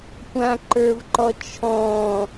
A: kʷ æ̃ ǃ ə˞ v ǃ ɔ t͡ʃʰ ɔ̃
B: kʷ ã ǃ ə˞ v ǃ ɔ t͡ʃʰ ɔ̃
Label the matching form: B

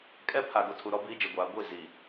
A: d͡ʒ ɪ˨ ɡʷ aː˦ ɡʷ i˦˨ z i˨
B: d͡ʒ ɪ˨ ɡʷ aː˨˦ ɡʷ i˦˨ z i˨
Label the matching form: B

